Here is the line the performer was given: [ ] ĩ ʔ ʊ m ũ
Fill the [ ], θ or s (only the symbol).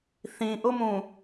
θ